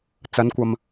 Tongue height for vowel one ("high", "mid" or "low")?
low